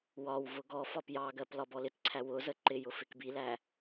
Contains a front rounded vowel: no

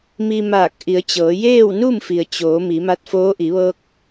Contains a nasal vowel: no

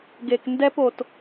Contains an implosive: no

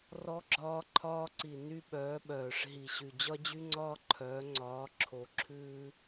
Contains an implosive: yes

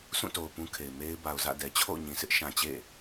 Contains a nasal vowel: yes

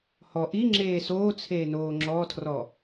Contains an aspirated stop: yes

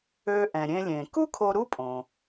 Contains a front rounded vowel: yes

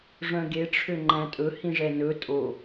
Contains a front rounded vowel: yes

